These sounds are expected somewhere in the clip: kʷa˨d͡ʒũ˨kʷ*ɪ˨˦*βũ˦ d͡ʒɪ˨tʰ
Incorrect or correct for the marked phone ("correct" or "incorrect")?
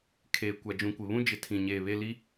incorrect